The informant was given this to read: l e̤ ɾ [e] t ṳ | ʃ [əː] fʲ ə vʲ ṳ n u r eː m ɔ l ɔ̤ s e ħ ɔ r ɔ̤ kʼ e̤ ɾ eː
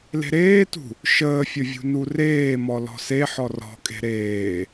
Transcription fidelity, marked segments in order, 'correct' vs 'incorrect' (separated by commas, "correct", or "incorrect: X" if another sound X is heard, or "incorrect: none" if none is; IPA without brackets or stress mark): incorrect: eː, correct